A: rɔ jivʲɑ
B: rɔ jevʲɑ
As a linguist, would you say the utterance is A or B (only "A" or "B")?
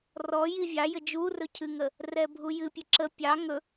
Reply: A